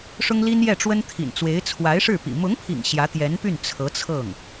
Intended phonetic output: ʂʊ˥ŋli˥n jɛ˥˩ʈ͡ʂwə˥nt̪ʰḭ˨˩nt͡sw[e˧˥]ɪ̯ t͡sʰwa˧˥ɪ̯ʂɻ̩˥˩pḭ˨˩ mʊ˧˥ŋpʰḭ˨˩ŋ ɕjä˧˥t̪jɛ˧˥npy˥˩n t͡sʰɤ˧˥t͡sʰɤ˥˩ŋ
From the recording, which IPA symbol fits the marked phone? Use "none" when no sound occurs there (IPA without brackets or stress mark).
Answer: e˧˥